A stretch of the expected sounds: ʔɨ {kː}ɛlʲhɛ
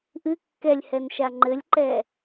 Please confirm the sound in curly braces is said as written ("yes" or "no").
yes